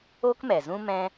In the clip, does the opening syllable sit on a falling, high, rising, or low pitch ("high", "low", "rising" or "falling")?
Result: high